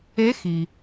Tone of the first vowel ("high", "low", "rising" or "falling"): rising